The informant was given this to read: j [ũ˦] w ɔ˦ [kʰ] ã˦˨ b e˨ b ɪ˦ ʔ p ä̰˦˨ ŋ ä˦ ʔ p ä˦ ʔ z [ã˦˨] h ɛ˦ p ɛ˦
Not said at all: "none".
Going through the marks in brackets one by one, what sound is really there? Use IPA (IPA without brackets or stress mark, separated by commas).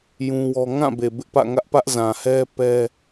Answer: ũ˦, ŋ, ã˨